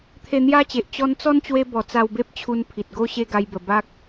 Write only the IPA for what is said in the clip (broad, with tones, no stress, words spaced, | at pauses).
t̪ʰe˧n̪ja˦t͡ɕe˨ʔ t͡ɕɔ˧nt͡sɔ˦nt͡ɕwe˧ bɔ˨˩t͡sa˧wbe˦p̚ t͡ɕʰu˧npʰi˨t̚ɡo˦ ɕe˦ɡa˧jbə˨˩ba˦k̚